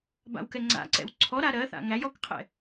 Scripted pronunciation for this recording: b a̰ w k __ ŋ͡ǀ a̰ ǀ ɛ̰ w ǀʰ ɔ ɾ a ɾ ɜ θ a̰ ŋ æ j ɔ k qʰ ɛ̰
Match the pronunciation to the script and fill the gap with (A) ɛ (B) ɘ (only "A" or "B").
A